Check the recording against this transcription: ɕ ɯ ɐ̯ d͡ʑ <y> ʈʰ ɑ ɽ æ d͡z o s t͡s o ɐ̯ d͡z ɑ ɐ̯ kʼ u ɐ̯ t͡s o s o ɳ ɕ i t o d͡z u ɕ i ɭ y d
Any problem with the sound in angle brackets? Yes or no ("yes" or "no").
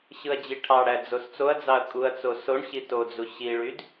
yes